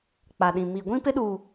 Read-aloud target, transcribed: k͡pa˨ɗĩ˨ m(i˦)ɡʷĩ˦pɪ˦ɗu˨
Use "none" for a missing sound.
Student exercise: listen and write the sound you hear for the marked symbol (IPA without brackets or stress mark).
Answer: i˨